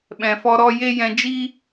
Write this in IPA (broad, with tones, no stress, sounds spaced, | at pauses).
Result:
ɓ ɛ̃˨ f ɔ˧ ɾ ɔ˦ j e˦ j ɛ̃˧ d͡ʒ iː˦